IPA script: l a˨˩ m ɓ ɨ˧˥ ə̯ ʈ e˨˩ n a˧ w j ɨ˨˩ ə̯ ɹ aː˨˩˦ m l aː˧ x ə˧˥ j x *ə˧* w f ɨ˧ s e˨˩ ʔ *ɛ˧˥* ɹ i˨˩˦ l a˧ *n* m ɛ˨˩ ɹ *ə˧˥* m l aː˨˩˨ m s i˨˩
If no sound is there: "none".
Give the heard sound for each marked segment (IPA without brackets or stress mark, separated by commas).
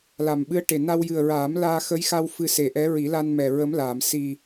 a˧, ɛ˧˥, n, ə˧˥